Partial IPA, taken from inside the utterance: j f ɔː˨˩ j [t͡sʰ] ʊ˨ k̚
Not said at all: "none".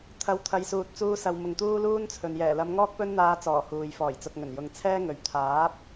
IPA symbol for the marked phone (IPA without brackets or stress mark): t͡s